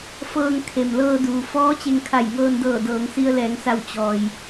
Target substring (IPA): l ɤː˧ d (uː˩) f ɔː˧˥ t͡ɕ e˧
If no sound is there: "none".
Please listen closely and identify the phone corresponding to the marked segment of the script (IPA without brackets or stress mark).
uː˩